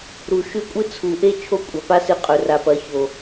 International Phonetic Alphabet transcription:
ɾ u˨ ʃ ʉ˦˨ kʷʼ ɨ˦ t͡sʰ u˨ ʔ e˦ t͡ʃʰ o˦ kʷʼ a˨ p a˦ s ɨ˧ qʼ ɵ˨ r a˨ p ɐ˨˦ ç o˨

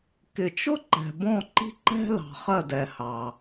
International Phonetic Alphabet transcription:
k ɪ˨ t͡ʃ ʊ˥ ǃ ɛ̤˨ b ɔ̃˦˨ ǃ i̤˥ ǃ ɛ̤˥ l ɑ̤˨ χ ɜ˦˨ d ɛ˨ h ɑ˨

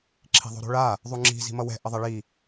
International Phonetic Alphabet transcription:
ǁʰ i̤ ðˤ o̤ ɾ o̤ ɭ a | ðˤ u ŋ͡ǁ i̤ z i̤ m ʌ w ɛ̤ ʔ ʌ ðˤ ɛ ɭ i

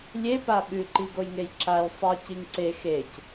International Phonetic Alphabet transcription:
lʲ e p a ɓ ʉ ǃ i ɡ o j ŋ e j ǁ a j sˤ i c i ŋ ǀ e x e c

